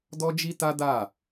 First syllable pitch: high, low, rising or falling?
high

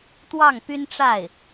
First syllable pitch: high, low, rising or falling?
falling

